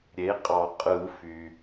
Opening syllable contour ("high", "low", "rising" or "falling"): rising